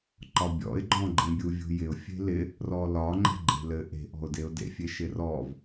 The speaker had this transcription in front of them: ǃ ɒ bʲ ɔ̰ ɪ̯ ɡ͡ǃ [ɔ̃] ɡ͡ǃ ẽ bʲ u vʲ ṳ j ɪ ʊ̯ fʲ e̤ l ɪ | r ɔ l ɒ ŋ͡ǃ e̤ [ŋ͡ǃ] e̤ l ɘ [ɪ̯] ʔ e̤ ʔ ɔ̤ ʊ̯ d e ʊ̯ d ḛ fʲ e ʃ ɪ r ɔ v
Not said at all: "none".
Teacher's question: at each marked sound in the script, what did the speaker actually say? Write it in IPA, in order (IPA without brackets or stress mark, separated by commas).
ɔ̃, ɡ͡ǃ, none